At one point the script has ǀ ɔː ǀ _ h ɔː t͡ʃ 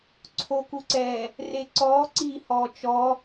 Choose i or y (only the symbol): i